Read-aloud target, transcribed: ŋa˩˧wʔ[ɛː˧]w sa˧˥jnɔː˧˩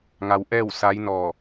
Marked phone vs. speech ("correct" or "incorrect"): incorrect